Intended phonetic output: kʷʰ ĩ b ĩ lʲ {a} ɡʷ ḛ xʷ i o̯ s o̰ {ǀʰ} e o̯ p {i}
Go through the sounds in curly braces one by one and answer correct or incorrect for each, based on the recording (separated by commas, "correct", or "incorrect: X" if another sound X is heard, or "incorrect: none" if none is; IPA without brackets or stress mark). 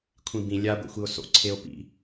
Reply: correct, correct, incorrect: ḭ